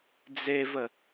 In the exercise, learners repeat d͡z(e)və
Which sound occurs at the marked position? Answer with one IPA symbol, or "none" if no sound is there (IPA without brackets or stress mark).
e